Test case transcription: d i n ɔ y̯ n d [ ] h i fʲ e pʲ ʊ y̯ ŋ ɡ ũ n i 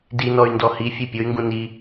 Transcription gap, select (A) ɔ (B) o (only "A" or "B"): A